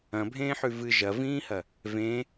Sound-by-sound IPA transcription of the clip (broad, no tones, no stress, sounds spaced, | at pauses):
ɐ̃ bʱ ẽː ħ ʉ v ɨ ʒ ɐ v ĩː h ɐ | v ẽ